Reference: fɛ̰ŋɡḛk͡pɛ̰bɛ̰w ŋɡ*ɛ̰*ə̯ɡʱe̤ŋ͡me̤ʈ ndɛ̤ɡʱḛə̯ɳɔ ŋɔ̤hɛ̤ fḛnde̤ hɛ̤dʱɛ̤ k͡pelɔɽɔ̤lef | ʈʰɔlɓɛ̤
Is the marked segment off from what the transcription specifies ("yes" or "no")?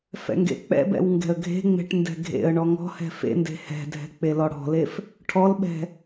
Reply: yes